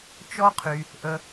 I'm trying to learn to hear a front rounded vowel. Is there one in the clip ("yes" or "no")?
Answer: yes